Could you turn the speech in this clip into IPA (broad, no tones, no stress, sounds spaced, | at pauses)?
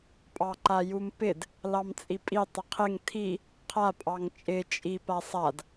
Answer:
pʼ ɑ ǃ a j u m p ɪ d | l ɑ m t͡sʼ i pʼ i tˤ ɪ qʰ ɪ ŋ tʰ i | qʰ a pʼ ɑ ŋ t͡ʃʼ ɪ t͡ʃʼ i p a sˤ a d